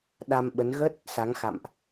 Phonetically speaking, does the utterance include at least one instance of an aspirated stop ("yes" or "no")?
no